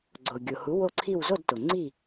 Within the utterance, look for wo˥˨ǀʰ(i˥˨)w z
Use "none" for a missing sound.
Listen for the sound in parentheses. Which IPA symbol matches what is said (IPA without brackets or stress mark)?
i˥˨